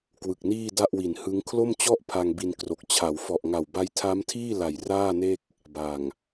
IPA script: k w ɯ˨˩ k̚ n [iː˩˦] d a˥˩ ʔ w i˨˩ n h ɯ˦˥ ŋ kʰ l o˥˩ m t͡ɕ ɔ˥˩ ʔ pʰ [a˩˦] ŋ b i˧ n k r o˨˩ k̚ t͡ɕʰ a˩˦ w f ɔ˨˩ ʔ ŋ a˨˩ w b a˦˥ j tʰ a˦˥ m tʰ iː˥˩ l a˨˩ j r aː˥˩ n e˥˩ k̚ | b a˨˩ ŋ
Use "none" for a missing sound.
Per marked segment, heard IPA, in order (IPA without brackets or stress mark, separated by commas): iː˥˩, a˧